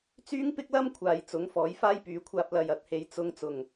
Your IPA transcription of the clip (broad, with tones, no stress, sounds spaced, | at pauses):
t͡s yː˥ ŋ p ɪ˥ k̚ l ɐ˥ m kʷʰ aː˨ j t͡s ʊ˨˥ ŋ f ɔː˨˥ j f aː˥ j p yː˨˥ kʷʰ aː˧ p̚ l ɐ˨ j ɐ˨˥ t̚ h e˨ j t͡s ʊ˧ ŋ t͡s ʊ˨˩ ŋ